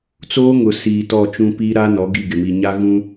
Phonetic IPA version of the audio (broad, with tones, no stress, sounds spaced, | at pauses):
t͡s oː˦ ŋ ʊ˨ s iː˨ t ɔ˦˨ t͡ʃ ũ˦ p iː˦ ɾ a˦ n ɔ˨˦ ɡ i˦˨ ɡ ɪ˨ m i˨ ɲ a˦ ɣ ũ˦